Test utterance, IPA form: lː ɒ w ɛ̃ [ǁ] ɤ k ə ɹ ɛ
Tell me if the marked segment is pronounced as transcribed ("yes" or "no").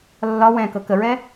no